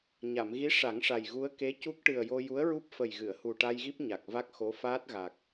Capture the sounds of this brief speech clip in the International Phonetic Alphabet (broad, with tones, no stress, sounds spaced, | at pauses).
ɲ a˨˩˨ m ɣ i˧˥ ʂ a˨˩˦ ŋ ʂ a˨˩ j ɣ u˧˥ ə̯ k e˧˥ c u˦˥ k̚ ʈ ɨ˨˩ ə̯ j o˧ j u˧˥ ə̯ ɹ u˦˥ p̚ f ə˨˩ j ɣ ɨ˨˩˨ ə̯ h u˨˩ ʈ a˧ j ɣ i˦˥ p̚ ɲ a˨˩ k̚ v a˦˥ k̚ x o˧˥ f aː˦˥ t̚ ɣ a˨˩ k̚